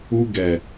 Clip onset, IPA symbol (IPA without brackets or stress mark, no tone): u